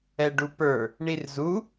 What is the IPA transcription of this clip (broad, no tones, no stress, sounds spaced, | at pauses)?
ɛ ɖ u p ə˞ | ɳ i r z u